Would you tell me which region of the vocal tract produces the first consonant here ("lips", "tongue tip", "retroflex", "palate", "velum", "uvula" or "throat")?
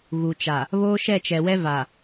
velum